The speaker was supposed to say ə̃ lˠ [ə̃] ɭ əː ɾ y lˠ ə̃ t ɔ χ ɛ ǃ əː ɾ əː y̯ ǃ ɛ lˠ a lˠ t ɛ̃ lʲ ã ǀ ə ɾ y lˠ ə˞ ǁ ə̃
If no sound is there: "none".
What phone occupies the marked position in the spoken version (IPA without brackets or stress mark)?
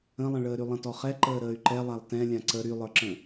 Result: ə̃